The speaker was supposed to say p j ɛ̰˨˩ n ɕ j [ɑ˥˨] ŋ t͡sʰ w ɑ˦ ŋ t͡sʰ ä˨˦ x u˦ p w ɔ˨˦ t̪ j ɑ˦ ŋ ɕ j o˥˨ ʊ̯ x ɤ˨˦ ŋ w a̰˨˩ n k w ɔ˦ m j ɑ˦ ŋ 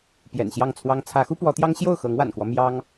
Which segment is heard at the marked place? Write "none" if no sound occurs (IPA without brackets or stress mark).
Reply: ɑ˥˨